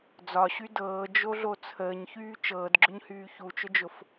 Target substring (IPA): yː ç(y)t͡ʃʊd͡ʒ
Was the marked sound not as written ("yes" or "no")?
yes